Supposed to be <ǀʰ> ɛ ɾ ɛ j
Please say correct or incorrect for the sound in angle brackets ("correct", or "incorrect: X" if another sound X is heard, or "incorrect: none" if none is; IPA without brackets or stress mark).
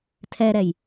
incorrect: tʰ